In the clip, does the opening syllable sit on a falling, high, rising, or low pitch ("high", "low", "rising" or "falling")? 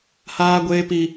high